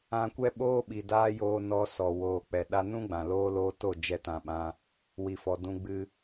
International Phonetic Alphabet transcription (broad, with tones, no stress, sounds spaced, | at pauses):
ã˧ kʷ ɛ˦ ɓ oː˦ ɓ i˨ d aː˦ j oː˧ n ɔ˧ s ɔ˨ w oː˨ k͡p ɛ˨ ɗ a˦ n ũ˦ ɡ͡b ã˨ l oː˦ l oː˦ t o˦˨ d͡ʒ ɛ˦ t ã˧ ɓ ã˦ | w i˨ f ɔ˨ d ũ˧ ɡ͡b ɨ˧